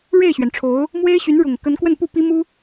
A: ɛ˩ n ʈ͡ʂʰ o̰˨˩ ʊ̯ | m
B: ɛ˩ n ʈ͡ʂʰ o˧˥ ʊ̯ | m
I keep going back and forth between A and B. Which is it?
B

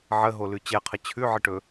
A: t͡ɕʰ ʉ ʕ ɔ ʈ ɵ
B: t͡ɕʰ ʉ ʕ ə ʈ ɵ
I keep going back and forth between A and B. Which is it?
B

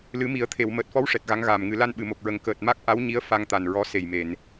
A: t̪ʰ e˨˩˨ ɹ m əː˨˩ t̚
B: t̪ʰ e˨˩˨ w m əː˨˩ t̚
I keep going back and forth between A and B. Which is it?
B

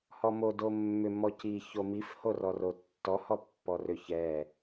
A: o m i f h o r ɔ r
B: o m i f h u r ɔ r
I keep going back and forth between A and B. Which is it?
A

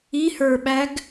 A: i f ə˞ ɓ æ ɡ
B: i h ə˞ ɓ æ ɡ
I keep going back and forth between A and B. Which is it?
B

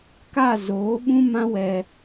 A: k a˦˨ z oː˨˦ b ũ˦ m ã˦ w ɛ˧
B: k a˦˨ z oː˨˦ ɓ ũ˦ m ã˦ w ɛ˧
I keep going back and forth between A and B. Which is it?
B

